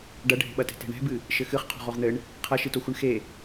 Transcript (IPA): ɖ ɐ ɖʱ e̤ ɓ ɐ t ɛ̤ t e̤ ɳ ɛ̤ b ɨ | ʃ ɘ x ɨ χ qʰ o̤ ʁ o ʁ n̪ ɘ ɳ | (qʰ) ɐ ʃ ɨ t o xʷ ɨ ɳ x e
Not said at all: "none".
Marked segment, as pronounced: qʰ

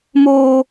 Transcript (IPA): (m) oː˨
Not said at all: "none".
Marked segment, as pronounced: m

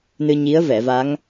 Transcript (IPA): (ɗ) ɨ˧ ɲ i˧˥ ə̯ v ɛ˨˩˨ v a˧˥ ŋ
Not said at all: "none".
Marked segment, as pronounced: n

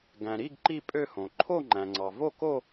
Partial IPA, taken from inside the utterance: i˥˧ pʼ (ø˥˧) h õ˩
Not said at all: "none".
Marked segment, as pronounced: ø˥˧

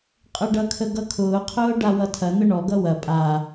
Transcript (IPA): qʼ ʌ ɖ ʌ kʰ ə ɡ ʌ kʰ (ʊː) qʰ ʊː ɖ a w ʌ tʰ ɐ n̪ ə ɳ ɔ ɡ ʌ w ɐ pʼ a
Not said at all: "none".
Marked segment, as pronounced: ʊː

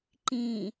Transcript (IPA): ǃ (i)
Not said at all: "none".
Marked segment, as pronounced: ĩ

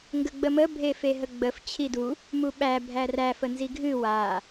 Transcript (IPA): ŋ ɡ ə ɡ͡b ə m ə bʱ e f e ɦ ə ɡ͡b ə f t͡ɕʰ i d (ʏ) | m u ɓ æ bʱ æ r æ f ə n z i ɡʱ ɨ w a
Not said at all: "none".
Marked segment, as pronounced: u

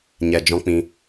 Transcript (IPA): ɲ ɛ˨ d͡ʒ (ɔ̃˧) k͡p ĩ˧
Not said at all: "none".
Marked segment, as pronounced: ɔ̃˧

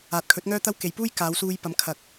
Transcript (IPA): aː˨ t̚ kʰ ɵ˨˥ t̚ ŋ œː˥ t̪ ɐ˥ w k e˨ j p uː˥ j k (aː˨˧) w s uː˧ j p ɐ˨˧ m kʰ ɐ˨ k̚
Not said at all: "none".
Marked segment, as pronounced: aː˨˧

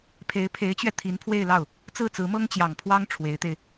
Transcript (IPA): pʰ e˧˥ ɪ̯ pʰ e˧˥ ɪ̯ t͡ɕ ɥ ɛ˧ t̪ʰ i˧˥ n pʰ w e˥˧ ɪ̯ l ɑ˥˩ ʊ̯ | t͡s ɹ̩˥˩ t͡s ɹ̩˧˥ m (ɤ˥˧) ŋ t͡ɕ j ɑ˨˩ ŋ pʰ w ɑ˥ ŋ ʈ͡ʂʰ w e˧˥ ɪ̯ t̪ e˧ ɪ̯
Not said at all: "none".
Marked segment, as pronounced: ɤ˥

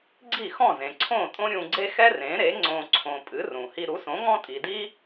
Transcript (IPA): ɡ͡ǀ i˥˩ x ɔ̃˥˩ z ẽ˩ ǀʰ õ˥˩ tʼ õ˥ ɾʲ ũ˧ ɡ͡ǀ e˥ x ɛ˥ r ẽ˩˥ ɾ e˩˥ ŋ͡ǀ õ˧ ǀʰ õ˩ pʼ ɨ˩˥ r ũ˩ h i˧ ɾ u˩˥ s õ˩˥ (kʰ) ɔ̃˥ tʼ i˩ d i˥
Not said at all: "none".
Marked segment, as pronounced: ŋ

